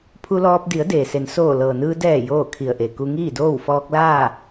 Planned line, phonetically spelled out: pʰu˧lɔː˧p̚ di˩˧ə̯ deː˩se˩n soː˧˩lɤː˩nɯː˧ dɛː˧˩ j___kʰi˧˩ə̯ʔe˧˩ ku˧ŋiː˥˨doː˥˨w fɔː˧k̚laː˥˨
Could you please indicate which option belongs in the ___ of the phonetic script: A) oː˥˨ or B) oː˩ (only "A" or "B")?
A